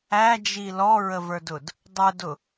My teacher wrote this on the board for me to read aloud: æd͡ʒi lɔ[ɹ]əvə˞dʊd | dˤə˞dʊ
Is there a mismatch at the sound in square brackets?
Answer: no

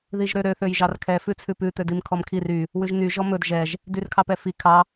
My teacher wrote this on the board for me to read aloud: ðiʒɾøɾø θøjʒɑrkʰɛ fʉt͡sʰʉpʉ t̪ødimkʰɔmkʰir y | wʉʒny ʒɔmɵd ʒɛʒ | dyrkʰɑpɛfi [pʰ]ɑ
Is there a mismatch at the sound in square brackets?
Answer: yes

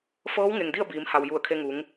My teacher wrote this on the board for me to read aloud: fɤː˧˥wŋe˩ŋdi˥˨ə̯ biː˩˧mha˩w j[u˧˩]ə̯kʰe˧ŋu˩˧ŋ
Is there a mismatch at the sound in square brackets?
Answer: no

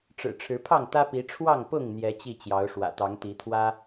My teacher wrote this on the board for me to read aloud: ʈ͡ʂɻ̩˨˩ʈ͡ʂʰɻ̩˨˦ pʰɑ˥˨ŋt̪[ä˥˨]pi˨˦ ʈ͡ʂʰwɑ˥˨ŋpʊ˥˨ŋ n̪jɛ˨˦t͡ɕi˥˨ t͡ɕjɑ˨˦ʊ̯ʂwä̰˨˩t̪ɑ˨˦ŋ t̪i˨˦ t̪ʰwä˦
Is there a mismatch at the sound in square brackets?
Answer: yes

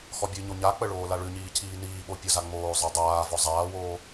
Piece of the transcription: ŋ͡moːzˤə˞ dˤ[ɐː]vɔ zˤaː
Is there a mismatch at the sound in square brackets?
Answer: yes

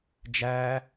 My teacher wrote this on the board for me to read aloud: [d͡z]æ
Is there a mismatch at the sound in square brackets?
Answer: yes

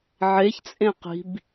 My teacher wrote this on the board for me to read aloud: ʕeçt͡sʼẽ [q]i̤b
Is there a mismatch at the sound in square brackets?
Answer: no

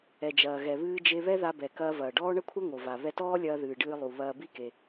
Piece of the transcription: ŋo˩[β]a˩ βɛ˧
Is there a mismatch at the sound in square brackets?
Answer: yes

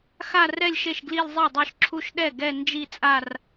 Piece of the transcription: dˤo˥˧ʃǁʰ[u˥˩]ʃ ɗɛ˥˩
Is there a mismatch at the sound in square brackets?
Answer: yes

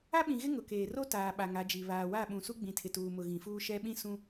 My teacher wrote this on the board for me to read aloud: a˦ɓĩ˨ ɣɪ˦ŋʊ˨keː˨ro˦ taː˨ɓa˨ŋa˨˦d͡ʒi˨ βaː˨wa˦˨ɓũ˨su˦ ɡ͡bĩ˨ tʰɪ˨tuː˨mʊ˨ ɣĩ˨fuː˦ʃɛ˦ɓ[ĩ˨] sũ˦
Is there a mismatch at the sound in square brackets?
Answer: yes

